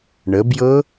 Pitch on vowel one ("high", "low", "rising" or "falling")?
rising